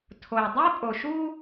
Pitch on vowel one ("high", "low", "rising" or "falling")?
low